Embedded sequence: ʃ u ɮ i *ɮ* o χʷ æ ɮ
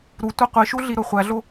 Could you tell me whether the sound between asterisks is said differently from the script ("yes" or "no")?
yes